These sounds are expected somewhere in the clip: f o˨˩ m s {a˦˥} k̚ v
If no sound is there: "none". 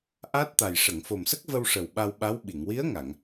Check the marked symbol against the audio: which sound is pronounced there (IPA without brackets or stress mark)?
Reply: ə˦˥